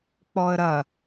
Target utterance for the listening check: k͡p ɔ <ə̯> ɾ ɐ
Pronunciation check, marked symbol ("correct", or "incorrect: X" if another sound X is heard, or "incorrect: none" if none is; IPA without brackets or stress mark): correct